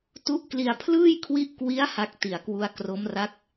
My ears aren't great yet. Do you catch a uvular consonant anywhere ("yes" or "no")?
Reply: no